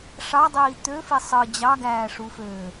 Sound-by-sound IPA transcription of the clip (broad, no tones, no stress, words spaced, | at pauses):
ʂɑdˤiː t̪øfi sˤɯ d͡ʑɑɡæːʂuføː